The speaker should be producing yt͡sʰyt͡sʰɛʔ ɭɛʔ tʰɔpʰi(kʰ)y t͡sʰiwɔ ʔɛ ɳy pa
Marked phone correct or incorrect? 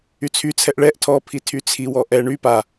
incorrect